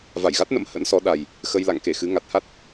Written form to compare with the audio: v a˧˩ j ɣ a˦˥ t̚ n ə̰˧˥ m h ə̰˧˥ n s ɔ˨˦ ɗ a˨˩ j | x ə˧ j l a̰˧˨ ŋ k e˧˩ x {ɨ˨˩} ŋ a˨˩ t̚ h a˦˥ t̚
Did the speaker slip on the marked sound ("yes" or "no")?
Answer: yes